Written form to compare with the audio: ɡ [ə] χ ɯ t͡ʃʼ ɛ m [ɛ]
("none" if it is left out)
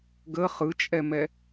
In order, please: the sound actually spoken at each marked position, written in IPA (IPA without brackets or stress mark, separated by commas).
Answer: ə, ɛ